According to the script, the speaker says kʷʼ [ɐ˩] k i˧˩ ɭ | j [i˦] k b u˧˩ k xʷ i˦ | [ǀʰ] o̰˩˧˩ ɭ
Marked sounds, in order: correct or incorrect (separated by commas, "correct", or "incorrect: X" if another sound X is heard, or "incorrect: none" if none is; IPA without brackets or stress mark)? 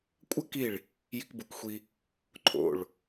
incorrect: ɐ˦, correct, incorrect: ǃʰ